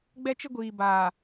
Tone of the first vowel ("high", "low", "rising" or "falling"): high